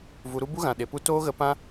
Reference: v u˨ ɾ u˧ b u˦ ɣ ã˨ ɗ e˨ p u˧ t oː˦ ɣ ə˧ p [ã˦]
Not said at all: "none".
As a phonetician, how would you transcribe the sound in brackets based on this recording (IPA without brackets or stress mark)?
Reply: ã˦